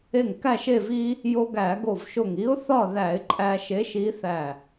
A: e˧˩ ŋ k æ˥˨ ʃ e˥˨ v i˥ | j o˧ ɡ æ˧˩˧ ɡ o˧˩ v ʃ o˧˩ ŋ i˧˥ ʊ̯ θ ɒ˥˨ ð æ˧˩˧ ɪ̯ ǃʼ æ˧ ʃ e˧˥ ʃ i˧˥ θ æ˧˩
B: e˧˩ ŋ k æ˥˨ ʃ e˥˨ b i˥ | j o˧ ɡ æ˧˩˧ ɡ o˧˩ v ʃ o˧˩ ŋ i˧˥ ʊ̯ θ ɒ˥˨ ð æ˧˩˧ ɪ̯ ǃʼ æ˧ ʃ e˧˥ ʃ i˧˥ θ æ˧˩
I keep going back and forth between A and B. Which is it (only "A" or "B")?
A